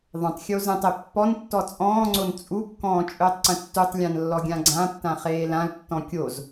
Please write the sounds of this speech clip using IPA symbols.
ðˤ ə̃ tˤ xʲ o z ə̃ tˤ e pː ɔ n tː ɔ t͡sʼ ɔ̃ː ŋ͡ǀ o n t͡sʼ u kː ɔ̃ː t͡ʃʼ ɵː tˤ ǀ ə̃ tː u tˤ lʲ ã n lː ɔ ɡʲ ã ɡ͡ǀ ã tː ã χ eː l ã l tː ɔ̃ kʲ o z

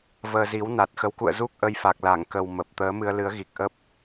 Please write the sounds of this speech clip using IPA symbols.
v əː˧ z i˨˦ w n a˨˩ t̚ x ə˨˦ w k ṵ˧˨ ə̯ z u˦˥ k̚ ʔ ə˧ j f a˨˩ k̚ l a˧˩ ŋ k ə˨˩ w m ə˨˩ p̚ t̪ əː˨˦ m ɨ˧ ə̯ l ɨ˨˦ ə̯ ɣ i˨˩ k̚ ʔ ə˦˥ p̚

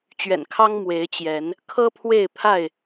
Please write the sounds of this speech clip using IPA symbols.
t͡ɕ ɥ ɛ̰˨˩ n kʰ ɑ˦ ŋ m w e˨˦ ɪ̯ t͡ɕ j ɛ˨˦ n | kʰ ɤ˦ pʰ w e˥˨ ɪ̯ pʰ a˥˨ ɪ̯

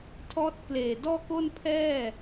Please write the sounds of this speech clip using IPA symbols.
tʰ ɔː˦˥ t̚ k l eː˨˩ d ɔː˥˩ k o˥˩ n pʰ ɛː˥˩

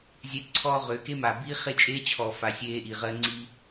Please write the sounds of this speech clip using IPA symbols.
zʲ ɛ˦ ǀʰ ɔː˦ ʁ ʏː˨˦ k e˦ m a˨ b iː˦ χ e˦ t͡ʃʼ eː˦ t͡ɕʰ ɔː˨ f a˨ sʲ eː˦ ʔ i˨ ʁ ɜː˦ ŋ͡ǀ i˦

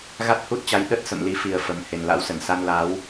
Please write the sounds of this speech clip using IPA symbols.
ɣ a˦˥ t̚ h u˦˥ t̚ t͡ɕ a˨˦ j ɗ ə˦˥ t̚ s ə̰˧˨ m l i˨˦ f i˨˩ ə̯ f ə˨˩ m h e˨˩ n l a̰˧˥ w s ə˧˩ n s a˧ n l a˨˦ w

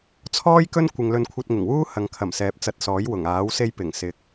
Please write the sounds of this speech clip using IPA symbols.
t͡sʰ ɔː˥ j k ɵ˥ n kʷ ɪ˧ ŋ l ɵ˥ n kʷʰ ɐ˥ t̚ ŋ ɪ˨˩ ŋ w uː˥ h ɐ˨ ŋ kʰ ɐ˨˩ m s ɛː˨ p̚ t͡s ɐ˧ t̚ s ɔː˨˥ j w ʊ˨˩ ŋ aː˨˥ w s e˥ j p ɪ˨˩ ŋ s ɪ˨˥ k̚

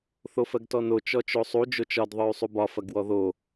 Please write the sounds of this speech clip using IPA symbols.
θ o f ɜ ɡ t ɔ n o t͡ʃ ɔ t͡ʃ o sˤ u d͡ʒ o t͡ʃ ɒ d ðˤ ə˞ y̯ sˤ u b ɒ f ɐ ɡ w ɔ ð o

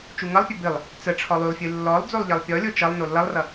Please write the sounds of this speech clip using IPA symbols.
t͡ʃ u ŋ ʌ lˠ pʲ œ b ɨ lˠ | t͡s ə ʈ͡ʂʰ ɔ lˠ y lˠ fʲ ɨ lː ɔ lˠ d͡z o lˠ ʎ ʌ lˠ pʲ ɔ lʲ o t͡ʃ ʌ lˠ n o lː ʌ lˠ r ʌ

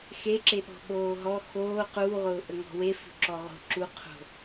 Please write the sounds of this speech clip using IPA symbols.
x e ǁ e ɓ ɔ̤ ɓ oː ɦ ɔ x oː q uː ʁ ʊː ʔ ə ŋ ɔ̤ w e f o̤ ǁ ɔ ʁ o̤ ǁ u qʰ o̤

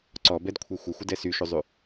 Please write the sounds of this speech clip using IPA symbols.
ǀ ɔ b ɛ d kʷʰ e xʷ ə xʷ ə d ɛ s y ʃ u zˤ y

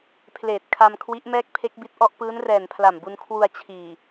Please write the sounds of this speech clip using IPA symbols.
pʰ l eː˨˩ t̚ kʰ a˧ m kʰ w i˦˥ ʔ m ɛː˥˩ k̚ pʰ e˦˥ k̚ b i˦˥ t̚ ʔ ɔ˥˩ ʔ p ɯː˦˥ n r ɛː˨˩ n pʰ l a˨˩ m b u˧ n kʰ w u˧ a̯ t͡ɕʰ iː˨˩

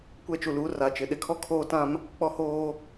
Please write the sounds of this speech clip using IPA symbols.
kʷ ɛ˦ t͡ʃ u˨ l uː˦ r a˨ t͡ʃ ɪ˨ ɗ ɪ˨ kʰ ɔ˦ kʰ oː˦ t ã˦ m | k͡p ɔ˦ h oː˦

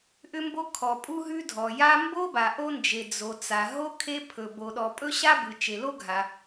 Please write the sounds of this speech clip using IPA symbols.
ʔ ʏ˥ m b o˥ kʰ ɔ˩ pʼ u˥ ɦ ʉ˥ dʱ ɔ˩ j a˥ m b o˥ b a˩ ʔ o˥ n d͡ʒ e˩ d͡z o˩ t͡s a˩ ɦ o˥ kʰ e˥ pʰ ɵ˩ b o˩ ɗ ɔ˩ pʼ ɵ˥ ɕ a˥ b ɯ˩ t͡ʃ e˩ l o˥ ɡʱ a˩

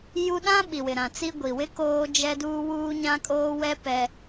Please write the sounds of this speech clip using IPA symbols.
j u˦ ɗ ã˦ ɓ i˨ w ɪ˨ ɾ ã˨ t͡s i˦ ɡʷ i˨ w ɪ˦ k oː˦ d͡ʒ ɛ˦ d uː˦ w uː˦ ɲ ã˦ kʼ oː˦ w ɛ˦ p ɛ˦

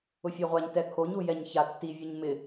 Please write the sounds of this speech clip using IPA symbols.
ʊ fʲ ɛ ʁʷ a ɲ t ɛ kʰ o ɲ u j ɛ ɲ ç a tː i vʲ o ɲ m ɪ

